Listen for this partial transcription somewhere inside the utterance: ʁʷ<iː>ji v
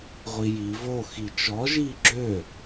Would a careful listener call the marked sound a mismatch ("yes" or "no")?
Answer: yes